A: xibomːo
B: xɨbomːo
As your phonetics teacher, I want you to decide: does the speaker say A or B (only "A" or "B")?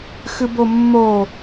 B